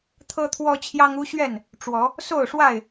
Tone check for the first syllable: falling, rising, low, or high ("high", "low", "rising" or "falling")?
high